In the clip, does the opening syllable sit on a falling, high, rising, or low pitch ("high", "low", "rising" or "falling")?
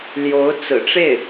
rising